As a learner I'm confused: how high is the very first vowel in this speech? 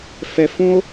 mid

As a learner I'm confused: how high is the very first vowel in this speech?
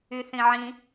high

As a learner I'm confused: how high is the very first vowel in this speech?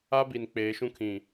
low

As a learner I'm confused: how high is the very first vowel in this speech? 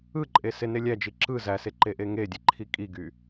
high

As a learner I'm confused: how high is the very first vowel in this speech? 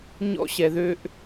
mid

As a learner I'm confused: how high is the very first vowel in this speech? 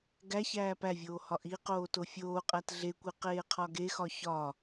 low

